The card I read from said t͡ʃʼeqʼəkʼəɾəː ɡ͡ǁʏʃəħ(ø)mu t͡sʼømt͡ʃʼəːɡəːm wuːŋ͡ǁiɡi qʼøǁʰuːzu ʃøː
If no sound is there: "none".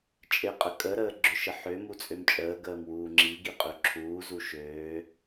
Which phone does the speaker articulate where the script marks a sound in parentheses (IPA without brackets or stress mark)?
ø